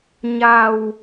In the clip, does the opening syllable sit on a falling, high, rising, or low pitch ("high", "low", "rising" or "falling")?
low